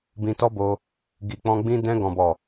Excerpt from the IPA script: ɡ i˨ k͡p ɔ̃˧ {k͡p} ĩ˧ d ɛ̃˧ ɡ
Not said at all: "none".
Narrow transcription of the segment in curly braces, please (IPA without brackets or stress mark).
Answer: ɡ͡b